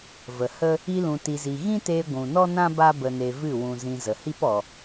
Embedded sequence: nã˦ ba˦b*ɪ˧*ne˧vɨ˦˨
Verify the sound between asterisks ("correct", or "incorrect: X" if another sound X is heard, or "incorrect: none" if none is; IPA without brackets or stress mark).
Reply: incorrect: ə˧